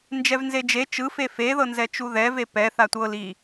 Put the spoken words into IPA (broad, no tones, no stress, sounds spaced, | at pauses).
n d͡ʒ ɛ v n z e d͡ʒ e t͡ʃ ɯ f e f e ð ɤ n z ɛ t͡ʃ u ð ɛ v e p ɛ θ a tʷ ɤ l i